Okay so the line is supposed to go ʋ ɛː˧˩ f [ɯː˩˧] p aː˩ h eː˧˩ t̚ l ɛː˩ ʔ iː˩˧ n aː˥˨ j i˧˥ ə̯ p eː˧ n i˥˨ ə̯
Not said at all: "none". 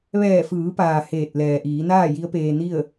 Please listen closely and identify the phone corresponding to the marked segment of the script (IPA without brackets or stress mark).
ɯː˩˧